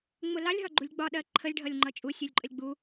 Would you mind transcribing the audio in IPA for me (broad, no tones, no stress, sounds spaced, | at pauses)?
ŋ͡m ʊ l ɑ lʲ ɦ ɒ ɡ͡ǃ u lʲ ɡ͡b ɒ ɗ ɜ ǃʰ ə lʲ ɖʱ ʌ lʲ ŋ͡ǃ ʌ t͡ʃʼ u sʲ u lʲ ǃʼ ə lʲ ɡ͡b u